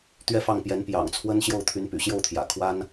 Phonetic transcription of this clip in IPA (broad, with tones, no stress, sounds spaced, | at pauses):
t̪ ɥ ɛ˥˧ f ɑ˥˩ ŋ p j ɛ˧˥ n p j ɑ̰˨˩ ŋ t͡sʰ w ə˥ n ɕ j o˥˩ ʊ̯ t̪ʰ y˧˥ n p y̰˨˩ ɕ j o˥˩ ʊ̯ t̪ʰ j ä̰˨˩ kʰ w a˥ n